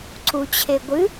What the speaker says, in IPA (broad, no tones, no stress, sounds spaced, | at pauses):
ǀ u t͡ɕʰ e ɡʷ ɨ